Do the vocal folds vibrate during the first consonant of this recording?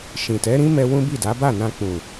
no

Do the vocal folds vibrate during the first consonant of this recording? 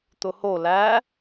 no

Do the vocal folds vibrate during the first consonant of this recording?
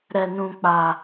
yes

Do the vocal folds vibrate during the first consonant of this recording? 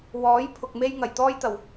yes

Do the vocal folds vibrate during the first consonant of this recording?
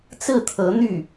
no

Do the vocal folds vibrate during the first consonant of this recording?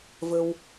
yes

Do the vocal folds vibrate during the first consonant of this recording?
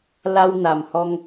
yes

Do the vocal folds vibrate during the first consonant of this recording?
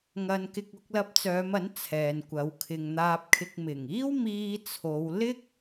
yes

